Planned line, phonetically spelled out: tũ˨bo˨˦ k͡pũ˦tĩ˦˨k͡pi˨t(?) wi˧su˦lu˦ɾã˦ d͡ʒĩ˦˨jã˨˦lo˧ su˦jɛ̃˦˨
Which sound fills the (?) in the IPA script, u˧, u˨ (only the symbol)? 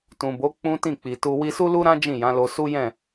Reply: u˧